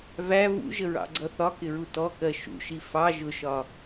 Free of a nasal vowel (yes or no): yes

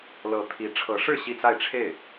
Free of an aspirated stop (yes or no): no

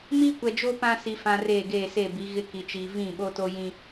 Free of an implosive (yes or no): no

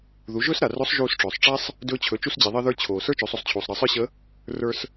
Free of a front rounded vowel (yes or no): yes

